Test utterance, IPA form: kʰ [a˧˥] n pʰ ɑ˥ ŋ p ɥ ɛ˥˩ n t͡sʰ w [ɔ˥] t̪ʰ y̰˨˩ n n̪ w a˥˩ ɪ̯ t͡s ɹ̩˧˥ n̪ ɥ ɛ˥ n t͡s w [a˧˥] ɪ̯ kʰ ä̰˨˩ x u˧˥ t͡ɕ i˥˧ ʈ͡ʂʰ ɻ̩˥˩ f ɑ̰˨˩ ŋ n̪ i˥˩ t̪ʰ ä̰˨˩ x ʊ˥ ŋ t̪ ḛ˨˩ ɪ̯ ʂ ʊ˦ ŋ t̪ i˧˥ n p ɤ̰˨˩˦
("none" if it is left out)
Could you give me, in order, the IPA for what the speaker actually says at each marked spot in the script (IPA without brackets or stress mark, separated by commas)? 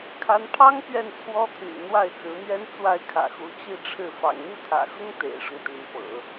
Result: a˧˥, ɔ˥, a˥˩